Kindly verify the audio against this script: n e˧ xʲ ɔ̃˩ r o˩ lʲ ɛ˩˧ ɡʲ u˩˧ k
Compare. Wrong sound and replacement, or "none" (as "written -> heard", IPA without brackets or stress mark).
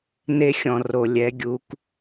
none